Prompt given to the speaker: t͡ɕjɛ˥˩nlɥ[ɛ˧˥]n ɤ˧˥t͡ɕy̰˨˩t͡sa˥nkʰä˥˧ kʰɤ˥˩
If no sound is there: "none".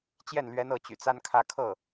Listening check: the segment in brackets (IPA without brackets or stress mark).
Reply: ɛ˧˥